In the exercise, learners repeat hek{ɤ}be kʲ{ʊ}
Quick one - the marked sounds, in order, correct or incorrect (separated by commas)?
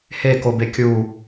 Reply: incorrect, incorrect